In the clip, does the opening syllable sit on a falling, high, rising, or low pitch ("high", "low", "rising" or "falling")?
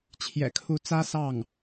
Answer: low